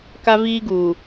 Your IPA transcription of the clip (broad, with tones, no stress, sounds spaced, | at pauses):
k a˦ v iː˦ ɡ uː˨